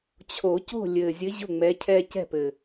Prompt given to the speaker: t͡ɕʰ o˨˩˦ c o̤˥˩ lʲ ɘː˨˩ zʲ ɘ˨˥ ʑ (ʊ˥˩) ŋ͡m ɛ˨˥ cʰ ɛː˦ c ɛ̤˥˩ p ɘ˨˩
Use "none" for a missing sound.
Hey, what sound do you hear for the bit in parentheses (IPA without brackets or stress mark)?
ʊ˥˩